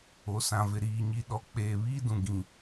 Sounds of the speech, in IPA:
o˨ s ã˨ v ɪ˨ ɾ iː˨ ɲ i˨ ɗ ɔ˨ k͡p eː˨ β iː˦ d ũ˨ ɡ ĩ˨

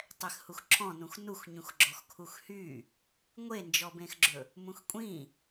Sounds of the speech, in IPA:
tˤ ɛ x h u x ǁʰ ɔ̃ n ũ x n u x ɲ ũ x ɡ͡ǁ ɔ x kʰ u x h y | ŋʷ e n d͡ʒ ɔ b ẽ x ɡ͡ǁ ɵ | m ũ x kʷʼ ĩ

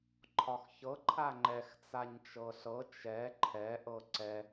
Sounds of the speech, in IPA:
ǃʰ ɒ x ç ɤ ǃʰ a ŋ͡ǃ ɛ x t͡s a ɲ t͡ʃ ɤ ɬ ɤ t͡ʃ ɛ ǃʰ ɛ ʔ ɤ ǀ ɛ

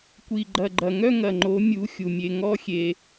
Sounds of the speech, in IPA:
kʷ i˨ ɡ͡ǃ ɐ˨ ɡ͡ǃ ɐ˨ ŋ œ˦ ŋ ɐ˨ ŋ͡ǃ o˨˦ mʲ u˨˦ xʲ u˨ mʲ e˧ ŋ ɔ˦ xʲ e˧

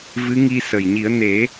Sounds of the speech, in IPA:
v ɨ˧˥ ŋ i˧ s ə˨˩ j ɲ i˨˩˦ ə̯ n e˨˩˦

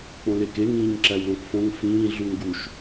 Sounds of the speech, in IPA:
k͡p õ l e k e ŋ ĩː ɲ ǁ æ w l õ k f õ ŋ f ĩː ɮ u ŋ ɡ u ʃ

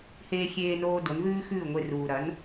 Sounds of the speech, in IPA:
h eː˧ xʲ eː˧ n oː˧ d o˩˥ n ð ʉː˥ x ʉː˥˩ ŋʷ e˧ r uː˩ ɾ ɐ˩˥ n

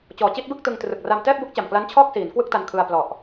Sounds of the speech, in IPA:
t͡ɕ ɔː˨˩ t͡ɕ i˥˩ t̚ b ɯ˥˩ k̚ t ɯ˧ ŋ t r ɯ˨˩ k̚ r a˧ m t ɛː˥˩ p̚ b u˦˥ k̚ t͡ɕ a˨˩ m k l a˦˥ n t͡ɕʰ ɔː˥˩ k̚ s iː˩˦ n k w ɯ˥˩ k̚ t a˧ n kʰ ɯ˧ a̯ p l ɔ˨˩ ʔ

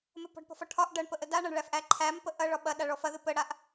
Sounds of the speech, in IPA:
m ə p ɔ̤ ɖ p ɔ̤ f ɒ ʈʰ ɒ ʔ ɖ ɐ ɳ p ə ʔ ə d a ɳ ɐ ɳ ɭ æ f ʔ æ ǃʰ æ m p ə ʔ ɐ ɭ ɒ ɓ ɐ ɗ a ɭ ɔ f ɐ ð ɨ p ə ɽ a ʔ

